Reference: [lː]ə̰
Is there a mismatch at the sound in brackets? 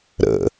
yes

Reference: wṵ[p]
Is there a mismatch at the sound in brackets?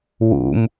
yes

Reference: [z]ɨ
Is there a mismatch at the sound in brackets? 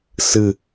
yes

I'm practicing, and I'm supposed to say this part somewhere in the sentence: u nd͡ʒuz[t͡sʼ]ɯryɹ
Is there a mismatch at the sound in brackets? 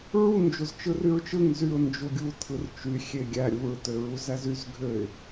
yes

